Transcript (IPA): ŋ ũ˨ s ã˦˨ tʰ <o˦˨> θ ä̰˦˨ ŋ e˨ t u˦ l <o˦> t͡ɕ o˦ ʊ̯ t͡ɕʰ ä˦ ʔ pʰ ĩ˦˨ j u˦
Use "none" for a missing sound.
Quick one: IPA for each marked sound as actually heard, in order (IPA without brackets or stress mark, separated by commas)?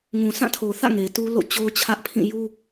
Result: o˨, o̰˦˨